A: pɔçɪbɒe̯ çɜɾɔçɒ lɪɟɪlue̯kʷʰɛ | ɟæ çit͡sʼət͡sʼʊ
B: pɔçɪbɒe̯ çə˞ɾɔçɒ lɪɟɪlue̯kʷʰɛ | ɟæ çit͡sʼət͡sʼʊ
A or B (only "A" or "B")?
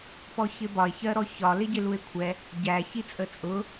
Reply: A